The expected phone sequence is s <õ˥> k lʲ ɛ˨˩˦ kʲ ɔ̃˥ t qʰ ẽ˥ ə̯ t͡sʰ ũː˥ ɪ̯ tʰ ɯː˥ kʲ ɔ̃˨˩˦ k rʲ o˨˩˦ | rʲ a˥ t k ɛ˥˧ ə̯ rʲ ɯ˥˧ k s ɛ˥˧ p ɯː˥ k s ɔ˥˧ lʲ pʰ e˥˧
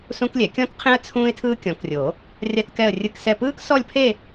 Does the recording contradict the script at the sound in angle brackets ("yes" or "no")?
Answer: yes